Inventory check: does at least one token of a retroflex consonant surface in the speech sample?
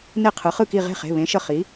no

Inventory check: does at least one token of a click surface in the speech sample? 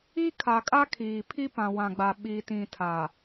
no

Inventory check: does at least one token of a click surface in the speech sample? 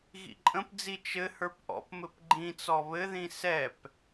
yes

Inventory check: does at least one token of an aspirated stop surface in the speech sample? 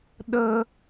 no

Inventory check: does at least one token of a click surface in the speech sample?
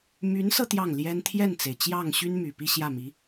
no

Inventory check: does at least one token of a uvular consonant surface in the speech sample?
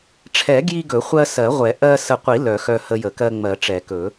yes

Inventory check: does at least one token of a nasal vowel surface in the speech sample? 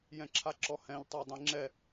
yes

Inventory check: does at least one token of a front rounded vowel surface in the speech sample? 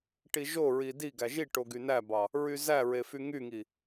yes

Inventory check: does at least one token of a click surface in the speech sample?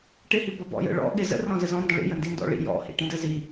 no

